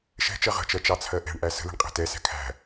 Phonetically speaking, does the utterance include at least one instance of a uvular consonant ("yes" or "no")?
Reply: yes